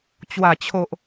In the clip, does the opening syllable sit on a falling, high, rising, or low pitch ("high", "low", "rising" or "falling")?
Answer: low